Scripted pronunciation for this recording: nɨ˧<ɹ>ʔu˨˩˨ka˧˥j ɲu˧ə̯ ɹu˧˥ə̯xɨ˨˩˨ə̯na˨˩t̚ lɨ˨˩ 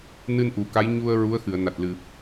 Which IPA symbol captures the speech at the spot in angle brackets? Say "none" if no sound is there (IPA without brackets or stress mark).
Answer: n